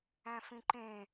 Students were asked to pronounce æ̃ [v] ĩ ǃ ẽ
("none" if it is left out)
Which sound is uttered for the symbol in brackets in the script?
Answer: f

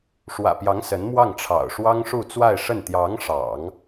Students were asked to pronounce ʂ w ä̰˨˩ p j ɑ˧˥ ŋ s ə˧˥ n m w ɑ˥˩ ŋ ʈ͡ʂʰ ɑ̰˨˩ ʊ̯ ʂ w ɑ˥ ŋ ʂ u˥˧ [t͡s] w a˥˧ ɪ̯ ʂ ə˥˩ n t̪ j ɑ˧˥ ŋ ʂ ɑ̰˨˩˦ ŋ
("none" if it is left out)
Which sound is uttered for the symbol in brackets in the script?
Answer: t͡s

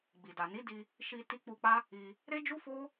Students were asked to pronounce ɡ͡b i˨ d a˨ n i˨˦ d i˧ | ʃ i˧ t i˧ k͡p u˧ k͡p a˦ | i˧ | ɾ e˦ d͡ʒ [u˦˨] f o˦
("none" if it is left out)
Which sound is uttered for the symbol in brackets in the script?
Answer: u˦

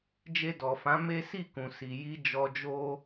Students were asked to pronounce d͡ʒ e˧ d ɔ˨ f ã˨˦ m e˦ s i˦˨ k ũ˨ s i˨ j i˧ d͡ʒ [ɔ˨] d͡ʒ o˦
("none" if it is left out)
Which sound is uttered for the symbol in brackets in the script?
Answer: ɔ˧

